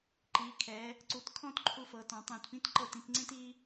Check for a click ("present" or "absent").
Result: present